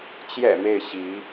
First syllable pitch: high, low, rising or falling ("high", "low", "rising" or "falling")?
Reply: low